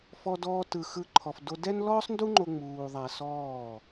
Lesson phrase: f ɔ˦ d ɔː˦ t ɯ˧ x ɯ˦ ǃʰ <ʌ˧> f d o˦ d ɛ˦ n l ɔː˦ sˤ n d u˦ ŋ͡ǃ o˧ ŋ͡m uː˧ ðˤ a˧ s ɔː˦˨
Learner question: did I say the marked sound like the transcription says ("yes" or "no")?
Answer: no